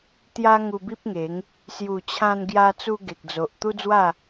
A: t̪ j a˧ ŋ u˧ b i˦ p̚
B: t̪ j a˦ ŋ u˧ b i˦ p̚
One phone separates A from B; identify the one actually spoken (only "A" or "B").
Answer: B